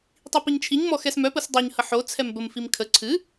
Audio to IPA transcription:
tˤipiɲt͡ʃʰiɲ mɔxɛsmœ pəsdˤoɲ həħo t͡sʰɛmbəm fimkʰə ǀʰɨ

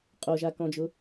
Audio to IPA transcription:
qʼoʒakɔ̃d͡ʒʊ

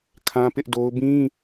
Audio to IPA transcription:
kʰã˦pɪ˦ʔdo˦ʊ̯ bĩ˦

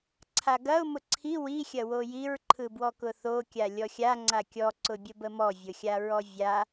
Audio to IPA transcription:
ǀʰaɡɐʊ̯ mʊǀʰi wi xʲɐwojiɹ ǃʰɯbwɔkʊθo kʲalʲɔxʲa ŋ͡ǀakʲɔ ǀʊbʲəbəmɔ vʲʊxʲaɹɔvʲa

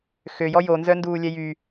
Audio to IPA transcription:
xøjɔ jonzœnduː lʲɛjy

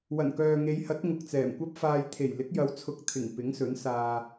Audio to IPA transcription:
wɐ˨˩nkœː˨ŋe˨˧jhɐ˨˥t̚ ŋʊ˨k̚t͡sɛː˨˩mkʷɐ˥p̚faː˧j t̪ʰe˨˩jlɪ˨˥k̚ jɐ˨˥wt͡sʰʊ˨k̚ t̪ʰɪ˨˩ŋ pɪ˨˥ŋsɵ˨˥nsaː˧

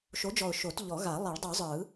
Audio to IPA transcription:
ʃo˨˥d͡ʒɔ˨˩ʊ̯ ʃo˨˩˦t ʎɔ˨˩˦ɣa˨˩˦ lˠɛ˨˩˦ɭdˤu˨˩˦zˤɯ˨˩˦

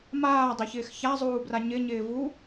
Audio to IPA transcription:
maːdˤɪçɪːx çazˤuːbra ɲɪɲɪː vu

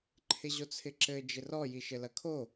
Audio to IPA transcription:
ǃʰɪʑot͡sʰɪǁɘ d͡ʒɪrɔ jiʃɘlɐkʰo

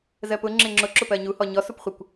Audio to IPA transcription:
zɜpʊ ŋ͡ǁɪŋ͡ǁʊ ǁʊpɜɲu hɔɲɔ supχʷɪkʷ

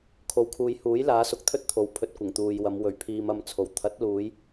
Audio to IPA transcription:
kʰo˨wkʰuː˨j huː˨˥jlaː˨˥sʊ˨k̚ t̪ʰɵ˥t̚t̪ʰo˨˥w pʰɵ˨t̚kʷɪ˨˩ŋ t̪uː˨jwɐ˨˧m wɵ˨˩ɥpʰiː˨m ɐ˧m t͡sʰo˨˩w t̪ʰɐ˨˥t̚luː˨˧j

